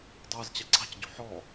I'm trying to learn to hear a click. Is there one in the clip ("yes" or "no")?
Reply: yes